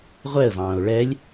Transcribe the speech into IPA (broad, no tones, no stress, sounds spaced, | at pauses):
ʁʷ ɛ ə̯ v ɑ̃ː ʊ̯ ɭ ɛ lʲ